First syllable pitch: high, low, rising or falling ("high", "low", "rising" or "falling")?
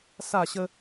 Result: falling